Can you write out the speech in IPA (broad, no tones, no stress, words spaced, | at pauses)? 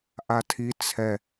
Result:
ʔatʰi t͡sʰɛ